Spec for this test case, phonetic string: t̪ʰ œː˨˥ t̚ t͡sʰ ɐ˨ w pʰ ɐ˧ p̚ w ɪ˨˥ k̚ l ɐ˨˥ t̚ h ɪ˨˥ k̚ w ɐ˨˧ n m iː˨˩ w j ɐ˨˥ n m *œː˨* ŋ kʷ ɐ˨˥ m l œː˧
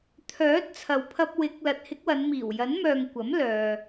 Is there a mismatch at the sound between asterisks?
no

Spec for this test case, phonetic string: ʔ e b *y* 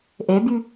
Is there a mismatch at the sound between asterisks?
no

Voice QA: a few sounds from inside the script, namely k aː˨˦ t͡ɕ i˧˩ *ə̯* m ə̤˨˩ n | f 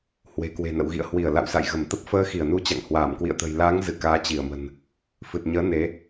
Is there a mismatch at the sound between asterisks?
no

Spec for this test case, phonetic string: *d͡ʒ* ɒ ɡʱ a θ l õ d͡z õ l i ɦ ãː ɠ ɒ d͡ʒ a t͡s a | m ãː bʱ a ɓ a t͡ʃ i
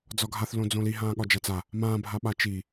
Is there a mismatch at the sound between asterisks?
yes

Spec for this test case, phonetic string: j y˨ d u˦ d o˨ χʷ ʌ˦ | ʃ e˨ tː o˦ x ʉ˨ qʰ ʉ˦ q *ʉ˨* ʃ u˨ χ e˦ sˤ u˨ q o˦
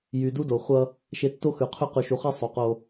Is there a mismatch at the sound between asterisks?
no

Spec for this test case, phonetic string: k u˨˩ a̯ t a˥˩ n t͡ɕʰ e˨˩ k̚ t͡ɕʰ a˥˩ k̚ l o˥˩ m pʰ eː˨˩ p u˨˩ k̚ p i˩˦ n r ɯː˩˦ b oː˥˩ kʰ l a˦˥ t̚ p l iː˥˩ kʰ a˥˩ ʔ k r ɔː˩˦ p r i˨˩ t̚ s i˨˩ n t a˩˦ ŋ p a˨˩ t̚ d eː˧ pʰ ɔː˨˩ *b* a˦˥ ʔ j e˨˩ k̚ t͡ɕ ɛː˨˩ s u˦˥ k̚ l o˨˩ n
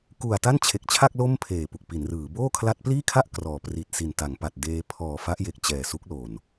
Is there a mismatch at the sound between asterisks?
yes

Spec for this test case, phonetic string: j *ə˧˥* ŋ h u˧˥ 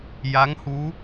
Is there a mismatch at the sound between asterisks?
yes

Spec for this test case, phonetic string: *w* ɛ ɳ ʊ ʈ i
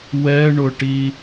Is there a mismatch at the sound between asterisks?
no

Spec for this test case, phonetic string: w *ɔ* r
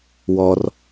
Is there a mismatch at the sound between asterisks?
no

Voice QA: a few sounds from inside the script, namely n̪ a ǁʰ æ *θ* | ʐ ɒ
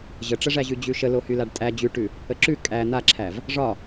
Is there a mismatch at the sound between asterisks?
yes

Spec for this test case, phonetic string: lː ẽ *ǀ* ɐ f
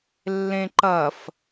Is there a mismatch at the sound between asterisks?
yes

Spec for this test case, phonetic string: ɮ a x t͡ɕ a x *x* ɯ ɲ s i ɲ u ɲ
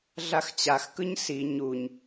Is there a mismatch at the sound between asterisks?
yes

